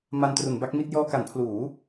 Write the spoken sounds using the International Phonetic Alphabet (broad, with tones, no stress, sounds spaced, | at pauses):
m a˧ n t r u˩˦ n b a˦˥ k̚ m i˥˩ t̚ j ɔː˧ k a˩˦ n pʰ l uː˩˦